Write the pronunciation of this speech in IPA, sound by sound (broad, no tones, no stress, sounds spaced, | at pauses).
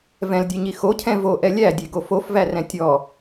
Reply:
v ɛ̃ l dʲ e ɲ i x o cʰ ɛ̃ v o ʔ ɛ lʲ æ dʲ e ɡ o f o f v æ r ɛ̃ tʲ ɔ